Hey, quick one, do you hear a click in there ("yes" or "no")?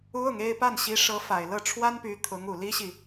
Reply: no